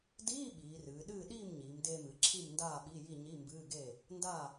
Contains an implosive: yes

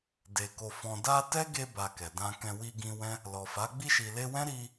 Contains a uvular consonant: no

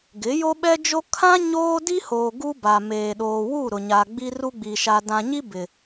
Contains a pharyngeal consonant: no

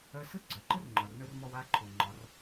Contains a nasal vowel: no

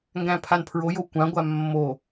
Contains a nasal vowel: yes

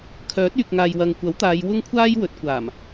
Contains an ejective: no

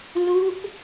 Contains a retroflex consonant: no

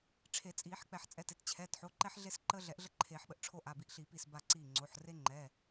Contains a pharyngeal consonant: yes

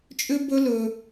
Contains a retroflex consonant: no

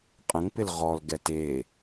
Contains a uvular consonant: yes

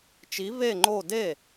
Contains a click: yes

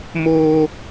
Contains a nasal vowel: no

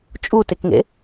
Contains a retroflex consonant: no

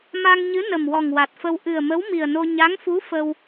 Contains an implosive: no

